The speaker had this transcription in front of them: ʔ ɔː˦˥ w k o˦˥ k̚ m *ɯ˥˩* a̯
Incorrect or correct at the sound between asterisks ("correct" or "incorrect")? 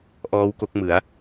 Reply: incorrect